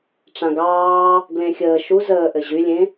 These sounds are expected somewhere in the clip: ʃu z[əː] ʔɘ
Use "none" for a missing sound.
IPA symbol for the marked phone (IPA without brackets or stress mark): əː